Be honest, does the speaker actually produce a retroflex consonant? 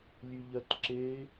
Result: no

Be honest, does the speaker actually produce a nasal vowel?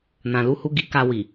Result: yes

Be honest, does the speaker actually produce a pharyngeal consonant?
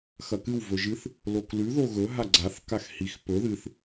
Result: no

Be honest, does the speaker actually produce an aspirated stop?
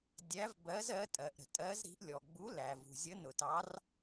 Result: no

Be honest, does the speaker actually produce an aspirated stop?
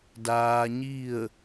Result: no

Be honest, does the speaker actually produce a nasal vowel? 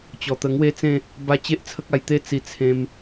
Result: yes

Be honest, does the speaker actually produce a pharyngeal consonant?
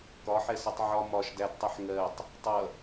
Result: yes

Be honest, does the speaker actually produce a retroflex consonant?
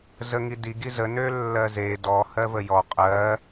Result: no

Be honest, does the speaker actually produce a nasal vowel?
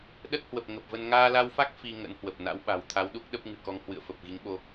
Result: no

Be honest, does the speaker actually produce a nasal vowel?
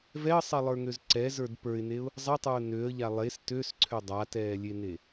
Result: no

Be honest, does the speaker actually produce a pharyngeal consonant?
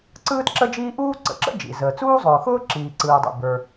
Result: no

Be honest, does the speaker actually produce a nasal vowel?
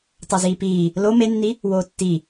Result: no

